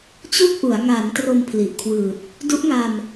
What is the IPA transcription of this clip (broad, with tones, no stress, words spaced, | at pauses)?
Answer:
t͡ɕu˥˩k̚ʔu˩˦a̯ ŋa˩˦n tro˧mpʰli˨˩ʔkʰwɯː˨˩t̚ | du˦˥ʔŋa˧m